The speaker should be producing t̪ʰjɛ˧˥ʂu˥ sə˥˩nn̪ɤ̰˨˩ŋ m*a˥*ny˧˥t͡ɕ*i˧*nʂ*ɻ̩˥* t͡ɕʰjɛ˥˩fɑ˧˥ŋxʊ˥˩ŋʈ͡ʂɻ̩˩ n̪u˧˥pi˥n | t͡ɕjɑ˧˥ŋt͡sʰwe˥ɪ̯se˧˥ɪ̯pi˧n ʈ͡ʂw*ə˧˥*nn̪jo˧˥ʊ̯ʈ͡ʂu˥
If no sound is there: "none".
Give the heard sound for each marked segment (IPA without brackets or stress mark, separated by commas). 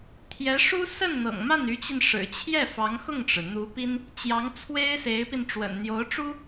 a˥˩, i˧, ɻ̩˨˩, ə̰˨˩